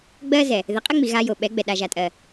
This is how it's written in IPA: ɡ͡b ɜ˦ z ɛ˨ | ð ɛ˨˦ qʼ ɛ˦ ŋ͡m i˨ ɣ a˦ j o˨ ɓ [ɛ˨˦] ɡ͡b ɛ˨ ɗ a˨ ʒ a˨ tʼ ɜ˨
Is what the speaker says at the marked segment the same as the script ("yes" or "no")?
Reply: yes